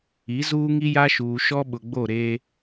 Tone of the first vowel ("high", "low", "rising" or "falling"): rising